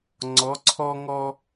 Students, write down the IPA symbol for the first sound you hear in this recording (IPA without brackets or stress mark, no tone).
ŋ͡ǀ